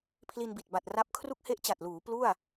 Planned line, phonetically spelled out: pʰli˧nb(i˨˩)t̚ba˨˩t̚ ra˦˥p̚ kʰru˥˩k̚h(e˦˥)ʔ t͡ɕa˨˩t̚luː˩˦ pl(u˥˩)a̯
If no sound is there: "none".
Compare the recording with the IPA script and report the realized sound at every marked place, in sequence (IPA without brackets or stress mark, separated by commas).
i˨˩, e˥˩, u˥˩